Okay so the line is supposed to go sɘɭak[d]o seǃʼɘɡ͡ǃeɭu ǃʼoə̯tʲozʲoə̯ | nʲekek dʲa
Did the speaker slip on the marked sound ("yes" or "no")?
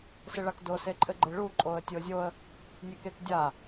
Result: no